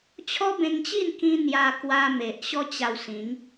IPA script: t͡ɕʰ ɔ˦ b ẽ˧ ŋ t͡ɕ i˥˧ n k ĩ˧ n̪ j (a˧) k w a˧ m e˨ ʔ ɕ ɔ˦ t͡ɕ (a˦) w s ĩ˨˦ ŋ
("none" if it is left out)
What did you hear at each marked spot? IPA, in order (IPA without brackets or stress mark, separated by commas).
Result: a˧, a˧